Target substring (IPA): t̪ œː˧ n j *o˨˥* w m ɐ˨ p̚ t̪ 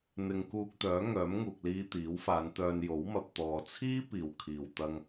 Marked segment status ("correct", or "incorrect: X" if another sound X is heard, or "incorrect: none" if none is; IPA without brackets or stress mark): correct